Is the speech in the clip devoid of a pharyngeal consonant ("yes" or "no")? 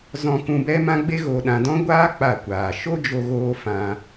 yes